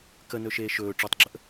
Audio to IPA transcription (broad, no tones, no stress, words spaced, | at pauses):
kənɵ ʃeːʃɵː ʈ͡ʂɵtˤɡ͡ǁəʔ